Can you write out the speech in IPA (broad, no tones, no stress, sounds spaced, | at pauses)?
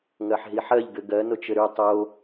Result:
ŋ ɜ ħ ɦ i ħ ɜ ʎ ɡ ɘ ɡ ɜ n o t͡ʃ ɘ ɾ ʉ tˤ o